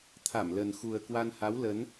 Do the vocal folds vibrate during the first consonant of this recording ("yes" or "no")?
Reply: no